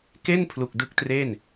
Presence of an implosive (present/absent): absent